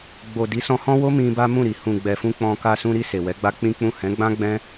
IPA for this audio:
ɡ͡b o˨ d i˨˦ s ɔ̃˧ h ɔ̃˦ w o˦ m ĩ˧ b a˦ m ũ˦˨ ɾ i˨ h ũ˨ ɡ͡b ɛ˨ f ũ˧ k͡p ɔ̃˧ k a˧ s ũ˧ ɾ i˧ s e˨ w ɛ˨˦ ɡ͡b a˦ k͡p ĩ˦ k͡p ũ˦˨ h ɛ̃˨˦ ɡ͡b ã˦ ɡ͡b ɛ̃˦

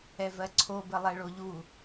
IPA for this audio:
ɛ v ɜ ǀʰ o b ə lˠ ɛ ɭ o ʎ u

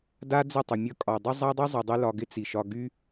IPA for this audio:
d a˦ d͡z ɪ˦˨ tˤ ə˨ mʲ ʌ˧ kʼ ɒ˨ dˤ ɪ˦ zˤ a˦ dˤ y˦ zˤ y˨ dˤ y˧ l ɒ˧ ɡ ɪ˦ t͡s i˨ ʃ ɒ˧ ɡ y˦

